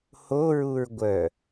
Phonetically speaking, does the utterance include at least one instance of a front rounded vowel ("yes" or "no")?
yes